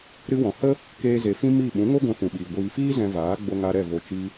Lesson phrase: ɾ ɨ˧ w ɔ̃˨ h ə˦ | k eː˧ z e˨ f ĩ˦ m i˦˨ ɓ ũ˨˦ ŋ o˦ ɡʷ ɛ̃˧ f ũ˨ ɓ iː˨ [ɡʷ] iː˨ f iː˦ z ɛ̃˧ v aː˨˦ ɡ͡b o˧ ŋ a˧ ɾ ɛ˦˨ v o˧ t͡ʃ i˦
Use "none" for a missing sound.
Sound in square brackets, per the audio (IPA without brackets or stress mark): ɡʷ